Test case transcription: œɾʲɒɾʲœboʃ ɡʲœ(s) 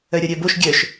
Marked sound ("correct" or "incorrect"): incorrect